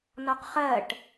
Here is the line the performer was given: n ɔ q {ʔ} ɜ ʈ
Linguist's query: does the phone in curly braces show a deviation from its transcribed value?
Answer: yes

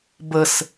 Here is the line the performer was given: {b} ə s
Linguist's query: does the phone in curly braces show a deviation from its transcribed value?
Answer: no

